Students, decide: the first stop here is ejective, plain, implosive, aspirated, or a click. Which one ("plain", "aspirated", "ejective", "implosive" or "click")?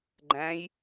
click